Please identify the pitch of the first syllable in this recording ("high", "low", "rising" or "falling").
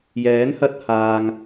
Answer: rising